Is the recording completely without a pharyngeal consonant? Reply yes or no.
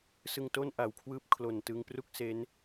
yes